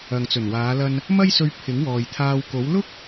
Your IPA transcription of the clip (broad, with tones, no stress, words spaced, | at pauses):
ɐ˨ŋt͡sɵ˨˩nwaː˨˧lɐ˧n | mɐ˥jsɵ˧ɥ pʰɪ˨˥ŋwɔː˨jt̪ʰaː˧w ko˨˥w lʊ˥k̚